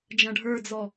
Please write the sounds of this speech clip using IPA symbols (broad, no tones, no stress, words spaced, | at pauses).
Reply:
d͡ʒɐ̃ɖʱə˞d͡zɔ